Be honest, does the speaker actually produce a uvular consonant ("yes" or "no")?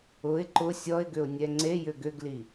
no